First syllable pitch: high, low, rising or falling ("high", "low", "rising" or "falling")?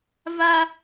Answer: high